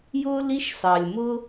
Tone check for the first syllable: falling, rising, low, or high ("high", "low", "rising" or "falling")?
high